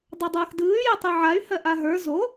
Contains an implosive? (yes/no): no